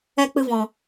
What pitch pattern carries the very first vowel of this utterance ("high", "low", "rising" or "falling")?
high